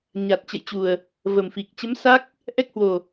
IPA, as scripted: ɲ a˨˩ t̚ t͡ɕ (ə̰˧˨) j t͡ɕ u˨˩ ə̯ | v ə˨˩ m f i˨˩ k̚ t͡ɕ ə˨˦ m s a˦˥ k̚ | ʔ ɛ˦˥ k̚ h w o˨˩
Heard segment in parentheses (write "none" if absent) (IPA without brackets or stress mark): ə̰˧˨